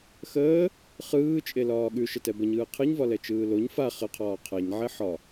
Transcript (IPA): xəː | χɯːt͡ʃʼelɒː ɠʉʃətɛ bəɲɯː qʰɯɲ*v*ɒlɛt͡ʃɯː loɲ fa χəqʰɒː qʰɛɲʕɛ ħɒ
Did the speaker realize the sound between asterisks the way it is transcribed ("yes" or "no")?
yes